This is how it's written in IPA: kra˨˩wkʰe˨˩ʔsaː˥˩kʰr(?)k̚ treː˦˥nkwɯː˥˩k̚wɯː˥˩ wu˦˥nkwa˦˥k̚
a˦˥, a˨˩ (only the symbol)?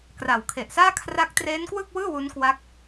a˦˥